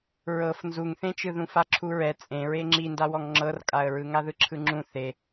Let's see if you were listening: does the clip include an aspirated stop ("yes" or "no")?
yes